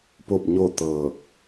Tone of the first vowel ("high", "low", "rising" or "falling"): falling